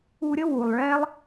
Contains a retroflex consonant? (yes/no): yes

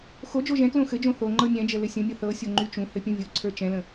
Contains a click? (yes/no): yes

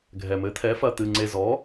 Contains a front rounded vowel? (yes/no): no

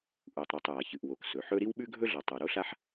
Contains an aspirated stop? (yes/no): no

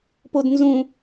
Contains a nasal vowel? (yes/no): yes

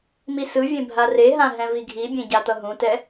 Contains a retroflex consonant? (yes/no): no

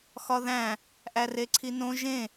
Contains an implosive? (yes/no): no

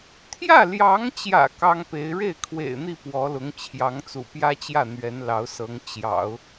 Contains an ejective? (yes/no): no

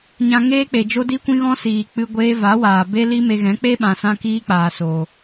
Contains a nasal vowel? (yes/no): yes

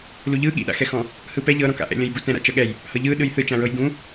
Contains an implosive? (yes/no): yes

